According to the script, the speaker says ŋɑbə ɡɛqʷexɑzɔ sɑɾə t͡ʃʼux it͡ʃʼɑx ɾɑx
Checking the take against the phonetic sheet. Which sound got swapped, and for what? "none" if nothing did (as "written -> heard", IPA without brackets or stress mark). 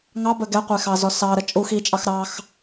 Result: none